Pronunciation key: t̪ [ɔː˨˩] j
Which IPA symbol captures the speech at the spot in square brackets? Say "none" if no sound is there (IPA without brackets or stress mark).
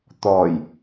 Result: ɔː˨˩